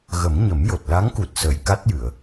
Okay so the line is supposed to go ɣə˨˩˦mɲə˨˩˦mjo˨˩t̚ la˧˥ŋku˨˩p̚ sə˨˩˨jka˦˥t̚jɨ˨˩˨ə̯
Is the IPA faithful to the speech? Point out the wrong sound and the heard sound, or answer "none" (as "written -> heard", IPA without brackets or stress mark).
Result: p̚ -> t̚